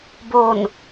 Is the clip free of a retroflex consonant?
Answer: yes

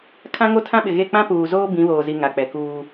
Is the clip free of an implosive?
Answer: no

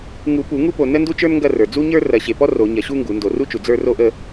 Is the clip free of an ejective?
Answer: yes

